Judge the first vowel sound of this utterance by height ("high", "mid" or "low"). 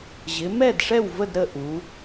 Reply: high